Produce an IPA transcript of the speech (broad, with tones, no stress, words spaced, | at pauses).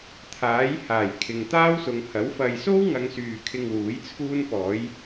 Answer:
t̪ʰaː˨˥j haː˨˩j kʰɪ˨ŋt̪aː˥wsʊ˨˧ŋ hɐ˨˥wfɐ˧j so˥wŋɐ˨˧ŋsyː˨ kʰɪ˧ŋwuː˨˥j t͡sʰuː˥npɔː˨˥j